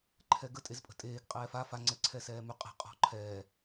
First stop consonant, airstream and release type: click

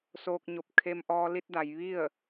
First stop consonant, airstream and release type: plain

